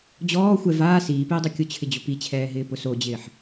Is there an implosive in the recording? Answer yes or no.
no